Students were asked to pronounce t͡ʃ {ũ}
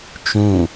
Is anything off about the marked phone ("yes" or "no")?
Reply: no